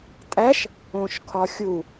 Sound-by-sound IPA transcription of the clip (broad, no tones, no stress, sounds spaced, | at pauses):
tʼ æ ʃ | õ ʃ kʰ ɒ xʲ u